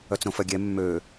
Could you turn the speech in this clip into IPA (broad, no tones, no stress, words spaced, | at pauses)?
œt͡sɾõfœɡʲɛ mːø